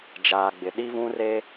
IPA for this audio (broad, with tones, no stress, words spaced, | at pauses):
d͡ʒaː˨ɡ͡bɪ˨ ɗi˦vũ˦ re˦